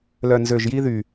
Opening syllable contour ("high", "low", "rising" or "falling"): low